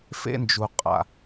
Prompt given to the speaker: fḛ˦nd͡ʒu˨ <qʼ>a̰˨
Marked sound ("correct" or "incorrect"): correct